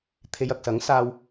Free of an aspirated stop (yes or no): no